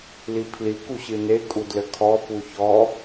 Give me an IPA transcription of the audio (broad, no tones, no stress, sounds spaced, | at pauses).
l i pʰ l i k u ɕ ɨ n e kʼ u d l ɘ kʰ ɔ p u ç ɔ